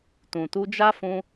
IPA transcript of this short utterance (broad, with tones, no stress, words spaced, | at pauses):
tũ˨tu˧d͡ʒa˦ fũ˦